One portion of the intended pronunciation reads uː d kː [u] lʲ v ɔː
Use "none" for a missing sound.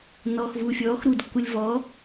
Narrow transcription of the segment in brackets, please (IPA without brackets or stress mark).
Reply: u